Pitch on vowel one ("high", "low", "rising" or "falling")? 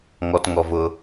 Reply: high